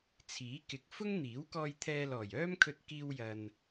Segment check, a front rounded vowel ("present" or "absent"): present